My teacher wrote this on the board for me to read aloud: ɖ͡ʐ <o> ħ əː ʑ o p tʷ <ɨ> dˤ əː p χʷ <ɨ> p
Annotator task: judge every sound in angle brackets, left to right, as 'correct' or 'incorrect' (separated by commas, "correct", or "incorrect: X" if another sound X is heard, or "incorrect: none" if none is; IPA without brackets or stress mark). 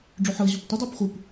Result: correct, correct, correct